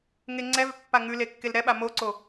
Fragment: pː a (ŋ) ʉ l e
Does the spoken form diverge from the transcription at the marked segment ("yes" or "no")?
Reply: no